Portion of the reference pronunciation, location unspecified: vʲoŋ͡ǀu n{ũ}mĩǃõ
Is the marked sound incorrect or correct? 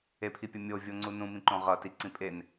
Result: correct